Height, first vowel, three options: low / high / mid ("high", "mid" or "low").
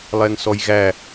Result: mid